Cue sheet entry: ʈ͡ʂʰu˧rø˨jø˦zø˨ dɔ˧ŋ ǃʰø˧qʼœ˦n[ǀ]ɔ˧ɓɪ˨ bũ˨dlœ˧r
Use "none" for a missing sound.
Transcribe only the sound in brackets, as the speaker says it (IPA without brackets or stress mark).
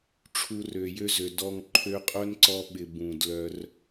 ǀ